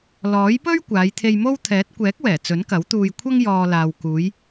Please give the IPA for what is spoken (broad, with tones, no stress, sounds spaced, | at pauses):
l ɔː˨˥ j p ɵ˥ ɥ kʷ aː˨˧ j t̪ʰ e˧ j m o˥ w t̪ʰ ɛː˨˥ t̚ kʷ ɛː˨˥ k̚ w ɛː˨˩ t͡s ɵ˨˥ n k ɐ˨˥ w t̪ uː˧ j kʷʰ ɐ˥ ŋ j ɔː˨ l aː˨ w k uː˨˧ j